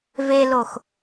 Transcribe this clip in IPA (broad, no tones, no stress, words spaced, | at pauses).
velox